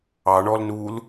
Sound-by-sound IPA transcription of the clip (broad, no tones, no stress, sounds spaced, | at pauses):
ɑ ɳ ɔ l n uː l